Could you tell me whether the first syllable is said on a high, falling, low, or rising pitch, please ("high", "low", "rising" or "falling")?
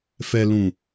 low